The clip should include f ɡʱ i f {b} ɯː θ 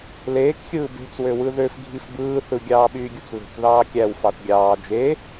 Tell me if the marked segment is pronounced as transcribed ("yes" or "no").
yes